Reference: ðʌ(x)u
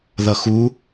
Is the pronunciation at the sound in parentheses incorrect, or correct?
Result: correct